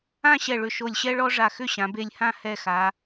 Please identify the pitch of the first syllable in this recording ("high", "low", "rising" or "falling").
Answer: falling